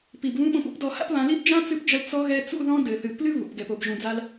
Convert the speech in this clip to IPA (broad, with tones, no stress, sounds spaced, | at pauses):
p i˨ b β ũ˧ ɓ õ˧ p ṵ˦ p d ɔ˧ h a̰˦ p β ã˧ l i˦ b d͡ʒ ã˦ t͡s ɨ˧ p d͡ʒ ɐ˧ l t͡s ɔ˧ ɣ ɛ˧ t͡s ṵ˦˨ ð ɔ̃˧ d ɘ˨ θ ɨ˨ p l ɨ˦ β ṵ˨ p ɡ ɛ˨ p o˨ b ʒ ũ˨ d͡z a˧ l